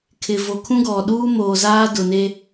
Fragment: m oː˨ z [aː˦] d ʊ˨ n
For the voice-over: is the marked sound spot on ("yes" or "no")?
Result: yes